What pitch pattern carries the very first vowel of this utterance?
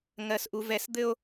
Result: low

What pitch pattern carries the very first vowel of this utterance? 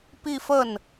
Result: falling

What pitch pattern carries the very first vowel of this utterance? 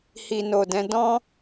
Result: low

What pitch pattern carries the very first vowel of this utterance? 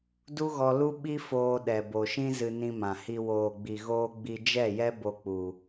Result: high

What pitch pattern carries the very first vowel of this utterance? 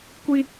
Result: high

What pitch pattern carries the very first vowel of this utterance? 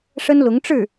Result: high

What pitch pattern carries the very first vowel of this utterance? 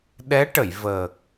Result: rising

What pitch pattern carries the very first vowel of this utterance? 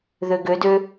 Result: low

